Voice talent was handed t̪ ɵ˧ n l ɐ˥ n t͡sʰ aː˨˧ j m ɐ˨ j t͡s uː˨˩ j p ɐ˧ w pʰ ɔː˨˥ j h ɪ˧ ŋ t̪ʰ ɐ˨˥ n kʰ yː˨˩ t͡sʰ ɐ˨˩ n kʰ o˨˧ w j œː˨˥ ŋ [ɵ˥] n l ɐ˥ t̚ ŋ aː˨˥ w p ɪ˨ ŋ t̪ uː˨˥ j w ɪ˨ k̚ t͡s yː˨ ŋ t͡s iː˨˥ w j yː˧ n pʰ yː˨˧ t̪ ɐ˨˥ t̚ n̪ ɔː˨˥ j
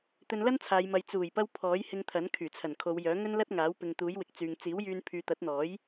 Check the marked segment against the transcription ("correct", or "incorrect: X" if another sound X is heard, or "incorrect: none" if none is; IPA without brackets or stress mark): correct